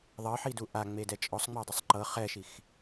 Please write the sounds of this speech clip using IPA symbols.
ðˤ ɤ ħ i d u ʔ a ŋ͡m e d ɛ t͡ʃʼ ɔ sˤ ŋ͡m ɛ dˤ ɯ sˤ ǃ ɤ χ ɛ ʃ i x

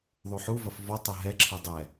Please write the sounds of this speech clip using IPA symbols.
ðˤ u ħ u v ɐ f v ɔ tˤ ɘ ɦ ɛ ǁʰ ɘ dˤ ɛ

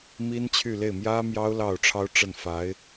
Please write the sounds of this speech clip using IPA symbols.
m i˥ n t͡ɕʰ y˥˧ l e˥˩ ɪ̯ m j ä˥ m j ɑ˥ ʊ̯ l ɑ˥˩ ʊ̯ ʈ͡ʂʰ ɑ˥ ʊ̯ ʈ͡ʂ ə˥˩ n f a˧˥ ɪ̯

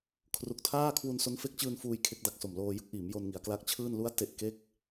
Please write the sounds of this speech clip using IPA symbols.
kʰ r u˨˩ k̚ tʰ aː˥˩ kʰ w u˧ n s o˦˥ n f e˦˥ k̚ t͡ɕ ɯː˧ n f uː˧ j kʰ e˦˥ k̚ d a˨˩ k̚ s o˨˩ m l oː˧ j ɯ˥˩ k̚ ʔ iː˩˦ m j o˧ n ŋ i˩˦ a̯ k l a˦˥ k̚ t͡ɕʰ ɯː˥˩ n l u˦˥ a̯ t e˨˩ ʔ k e˦˥ k̚

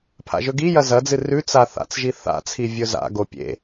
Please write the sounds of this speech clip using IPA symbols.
pʰ a̰ ʒ ɵ ɡ i j ɐ z ɐ d͡z ɨ r ʉ t͡s a θ a̰ t͡s ʒ i θ a̰ t͡sʰ i vʲ ɵ z a̰ ɡ o pʲ ḛ

